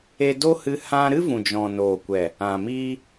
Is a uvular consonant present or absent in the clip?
absent